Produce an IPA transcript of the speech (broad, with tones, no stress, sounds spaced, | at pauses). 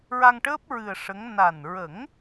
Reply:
ɹ a˧ ŋ ʈ əː˦˥ p̚ ɹ ɨ˨˩ ə̯ ʂ ə˧˥ ŋ n a˨˩ n ɹ ə˨˩˦ ŋ